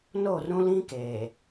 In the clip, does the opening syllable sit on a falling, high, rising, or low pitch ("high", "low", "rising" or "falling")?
falling